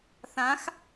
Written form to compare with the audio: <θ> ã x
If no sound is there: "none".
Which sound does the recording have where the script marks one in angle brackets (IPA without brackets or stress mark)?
θ